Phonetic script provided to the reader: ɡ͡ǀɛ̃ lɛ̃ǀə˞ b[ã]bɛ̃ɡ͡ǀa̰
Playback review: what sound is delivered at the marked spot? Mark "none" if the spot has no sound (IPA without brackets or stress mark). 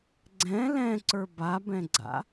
a